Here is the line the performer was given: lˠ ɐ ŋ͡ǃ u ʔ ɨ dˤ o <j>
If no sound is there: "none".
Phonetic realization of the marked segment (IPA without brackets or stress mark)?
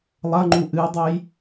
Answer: j